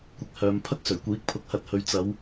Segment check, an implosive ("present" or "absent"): absent